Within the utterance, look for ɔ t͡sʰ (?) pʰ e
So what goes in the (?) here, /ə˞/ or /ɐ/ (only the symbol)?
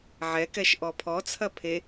ɐ